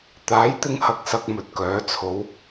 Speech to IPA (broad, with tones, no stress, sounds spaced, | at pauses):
t̪ aː˨˥ j t̪ ɪ˧ ŋ h ɐ˨ k̚ s ɐ˨ k̚ m ɵ˨ t̚ k œː˨˥ t͡sʰ o˨˥ w